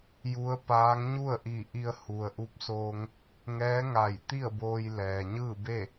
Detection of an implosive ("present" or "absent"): absent